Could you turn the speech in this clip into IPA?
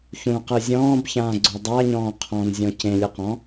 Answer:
ç ũ q ɯ zʲ ɔ̃ː b ç ãː ɡ͡ǀ o dˤ a ɲ ɔ̃ː qʰ ɔ̃ n zʲ ɔ̃ c ẽ lʲ ɯ q ɔ̃

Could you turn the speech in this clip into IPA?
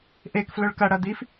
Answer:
ʔ e k f l ɵ ɭ k ɐ ɽ ɐ d̪ i f

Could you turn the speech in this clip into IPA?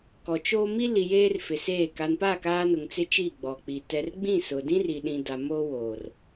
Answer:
k ɔ˨ t͡ʃ oː˦ m i˦ l i˨ j eː˦ r f ɪ˨ s eː˦˨ k a˨ n p a˦˨ k aː˦ n ʊ˨ ŋ t͡s ɪ˦ t͡ʃ i˦˨ ɡ͡b ɔ˨ k͡p i˨ t ɛ˨ r ɡ͡b ĩ˦˨ s ʊ˨ d ĩ˦ r i˨ ɗ ĩ˨ d a˨ m o˦ w oː˨ r

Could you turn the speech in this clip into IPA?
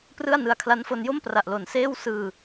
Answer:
p r ɯ˥˩ a̯ n ɯ˧ a̯ kʰ l a˦˥ n f o˧ n j o˥˩ m p r a˨˩ ʔ l o˨˩ n s eː˥˩ w s ɯː˧

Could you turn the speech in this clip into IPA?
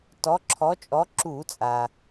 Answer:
t ɔ˨˦ ǁʰ ɔ˨˦ t͡ʃʼ ɔ˨˦ ǁ u˧˩˧ t͡sʼ a˩

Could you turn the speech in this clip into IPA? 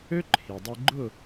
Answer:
ø˦ ǃʰ i˩ dˤ e˦ ɡ͡ǃ ʊ˥˨

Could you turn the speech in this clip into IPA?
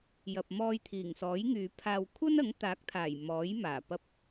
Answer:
j ɐ˨ p̚ m ɔː˧ j t̪ʰ iː˨˩ ŋ s ɔː˨˥ j ŋ yː˨˧ pʰ aː˧ w kʷʰ ɐ˥ n ɐ˨˥ ŋ t̪ aː˨˥ k̚ t̪ʰ aː˨˩ j m ɔː˨˥ j m aː˨˩ p ɐ˧ p̚

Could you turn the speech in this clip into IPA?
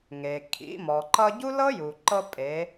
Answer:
ŋ e˩ kʰ ḭ˩˧ m ɔ˩ ǃ ʌ˧ ɟ u˥ l ɤ˥ j u˩ ǃ ɤ˧ pʼ e˩˧

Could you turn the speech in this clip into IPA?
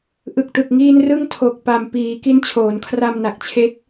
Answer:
ʔ ɯ˨˩ k̚ t ɯ˨˩ k̚ ŋ iː˧ n r ɯ˥˩ ŋ tʰ o˨˩ k̚ p a˨˩ m p iː˩˦ k i˦˥ n t͡ɕʰ oː˩˦ n kʰ r a˧ m n a˨˩ k̚ t͡ɕʰ e˦˥ k̚

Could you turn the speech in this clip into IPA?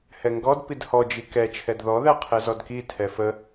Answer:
h ɛ ŋ ɡ ɔ d p i d h ɔ d͡ʒ i k ɛ t͡ʃʰ ɛ d ð ɔ ð æ qʰ ɛ z ɔ d k i tʰ ɛ f ə

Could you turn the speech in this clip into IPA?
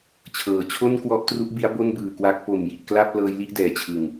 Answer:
t͡ɕʰ ɤː˩˦ t͡ɕʰ o˥˩ n k w ɔ˦˥ ʔ t r u˦˥ ʔ b i˦˥ a̯ b o˥˩ n b ɯː˨˩ k w a˦˥ k̚ p o˨˩ m j i˨˩ ʔ k l a˥˩ p̚ l ɤː˦˥ j l i˥˩ ʔ d ɛː˩˦ t͡ɕʰ ɯ˨˩ ŋ

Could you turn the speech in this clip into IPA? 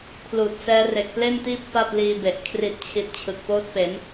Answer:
kʰ l uː˨˩ t̚ s ɛː˦˥ r e˨˩ k̚ p l e˥˩ n t iː˥˩ p̚ f a˥˩ t̚ l iː˧ b e˨˩ ʔ kʰ r i˨˩ t̚ t͡ɕʰ i˨˩ t̚ t͡ɕʰ ɯ˨˩ k̚ p oː˥˩ t̚ p e˩˦ n

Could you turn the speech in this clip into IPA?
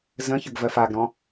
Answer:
z ə̃ ç ə ɡ v ɜ f a ɡ ɾ ɔ̃

